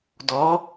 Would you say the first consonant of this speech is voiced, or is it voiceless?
voiced